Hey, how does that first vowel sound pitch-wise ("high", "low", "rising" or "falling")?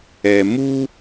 low